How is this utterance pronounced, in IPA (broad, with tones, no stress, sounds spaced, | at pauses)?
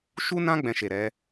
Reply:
ʃ u˦ n ã˦ ɡ͡b ɛ̃˧ ʃ e˨ ɾ ɛ˨˦